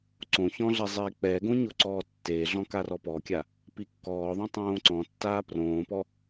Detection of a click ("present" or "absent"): present